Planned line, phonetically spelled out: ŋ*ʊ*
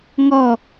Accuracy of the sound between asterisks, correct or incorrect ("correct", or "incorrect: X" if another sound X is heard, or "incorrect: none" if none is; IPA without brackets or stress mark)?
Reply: incorrect: ɔ